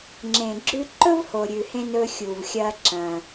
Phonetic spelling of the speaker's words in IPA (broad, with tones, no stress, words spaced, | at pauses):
ŋ͡ǁẽ˩ɡ͡ǁʉ˧ ǃɵ˥vho˩ɾʲʉ˩hẽ˧ nɵ˧xʲu˩vxʲɐ˧ ǁɐ̃˩